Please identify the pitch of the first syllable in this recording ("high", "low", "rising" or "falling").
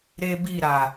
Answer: high